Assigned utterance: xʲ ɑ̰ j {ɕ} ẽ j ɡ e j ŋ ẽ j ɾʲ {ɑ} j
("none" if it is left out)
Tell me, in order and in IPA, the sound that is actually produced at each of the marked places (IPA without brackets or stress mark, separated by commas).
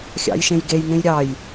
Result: ʃ, ɑ